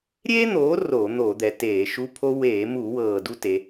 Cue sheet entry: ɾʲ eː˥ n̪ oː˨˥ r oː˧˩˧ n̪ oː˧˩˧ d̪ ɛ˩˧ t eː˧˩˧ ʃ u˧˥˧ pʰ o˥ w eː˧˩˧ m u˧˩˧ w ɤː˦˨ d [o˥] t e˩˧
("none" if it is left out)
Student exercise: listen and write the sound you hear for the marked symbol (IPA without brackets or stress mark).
u˥